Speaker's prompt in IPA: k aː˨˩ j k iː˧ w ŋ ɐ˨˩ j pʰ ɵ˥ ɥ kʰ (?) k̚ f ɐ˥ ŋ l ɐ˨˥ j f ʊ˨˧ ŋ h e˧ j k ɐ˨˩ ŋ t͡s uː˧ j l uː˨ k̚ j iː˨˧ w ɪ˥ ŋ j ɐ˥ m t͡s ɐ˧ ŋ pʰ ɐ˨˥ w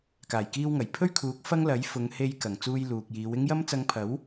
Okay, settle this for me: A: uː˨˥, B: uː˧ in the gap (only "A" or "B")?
A